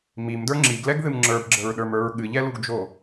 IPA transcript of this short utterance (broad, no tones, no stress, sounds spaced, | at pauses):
m i m d ə˞ ŋ͡ǁ i ɡ l ɛ ɡ ð ɨ m ŋ͡ǁ ə˞ b ɡ͡ǁ ə ɹ ɗ ə˞ m ə˞ ɹ ɠ ɨ ʎ ɛ l u ɡ d͡ʒ o